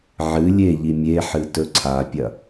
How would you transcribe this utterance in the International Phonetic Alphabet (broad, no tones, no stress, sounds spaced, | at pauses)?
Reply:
ʕ ɨ lʲ e ʎ i mʲ e ħ ɨ t ɵ ǀʰ a pʲ ɐ